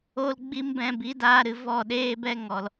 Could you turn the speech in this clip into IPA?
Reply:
o˦lɡ͡bi˦mbɛ̃˧ bi˨˦daː˧ɾɨ˨ vɔ˦˨ɗeː˦bɛ˦ ŋɔ˨l

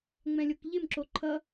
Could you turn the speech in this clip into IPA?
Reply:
ŋ͡mɛ̃lʲokʎɪmǁo ǃʰʌ

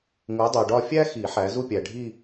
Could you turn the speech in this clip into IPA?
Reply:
ŋu˨˦dˤo˨ɖɒ˥˧ fʲæ˥xi˨˩˦ ħæ˨˦ zu˥˧pʲæ˨ɖʱi˥˧

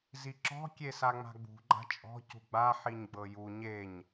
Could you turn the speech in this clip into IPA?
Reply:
ziǁɔ̤ kʲesaŋ͡ma̤ɡ͡bṳ ɡ͡ǃa̤t͡ʃʼɔ̤ cṳɡ͡ba ħiɲɡ͡bɤju ɲeɲ

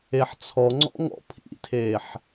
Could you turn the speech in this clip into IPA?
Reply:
eħt͡sʰɔŋ͡ǀɔ̰ ŋɔ̰pʰḭtʰeːħ

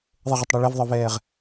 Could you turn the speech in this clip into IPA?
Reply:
ðˤəʁətˤɽu ɭɛvðˤə˞vɛːʁ

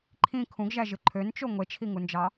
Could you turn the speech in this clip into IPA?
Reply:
ǃʰĩ kʰũɡʒæʒɯ ǃʰønt͡ʃo ŋʷet͡ʃʰiŋund͡ʒɑ

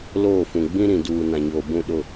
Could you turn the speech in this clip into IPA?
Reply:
loː˦˨fũ˨ ɡ͡bĩ˦ɾĩ˨duː˨ nã˨ɲoː˨bũ˦˨ ɗʊ˦˨

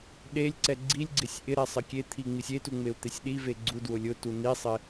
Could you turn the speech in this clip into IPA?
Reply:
ɗelʲǀɛ ɡ͡ǀilʲɡ͡ǀɪsʲ ʔɪɾɛ sˤɪkʲet̪ʰi ŋ͡misʲetu ŋ͡meu̯t̪esʲɗive ɡ͡ǀudwʊ lʲʊtu nisˤɪ

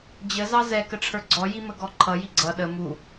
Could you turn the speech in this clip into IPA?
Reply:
d͡ʑəzɑ zɛkəʈ͡ʂʰə˞ ɡ͡ǀɔjiməɡɔ ǃʰʌji ɡ͡ǀʌ ɗə mu

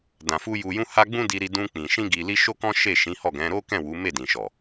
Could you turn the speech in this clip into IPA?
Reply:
dã˨fu˧ ju˨jũ˧ ha˦ɡ͡bũ˦ di˧ɾi˧ dũ˧ k͡pĩ˨ ʃĩ˧ɡi˨li˧ ʃo˦kɔ̃˦ ʃe˦˨ʃĩ˨˦hɔ˦˨ɡɛ̃˨˦ ɾo˦kɛ̃˦˨ wu˨˦me˦˨dĩ˨ʃɔ˨

